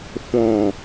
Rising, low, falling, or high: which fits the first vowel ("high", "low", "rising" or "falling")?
low